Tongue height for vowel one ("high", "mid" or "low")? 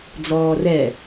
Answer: mid